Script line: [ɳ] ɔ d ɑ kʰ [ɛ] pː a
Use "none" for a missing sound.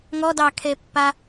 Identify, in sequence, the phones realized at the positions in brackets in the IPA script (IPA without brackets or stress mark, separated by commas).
ŋ, e